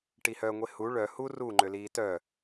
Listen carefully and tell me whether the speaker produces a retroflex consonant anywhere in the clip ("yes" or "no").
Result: yes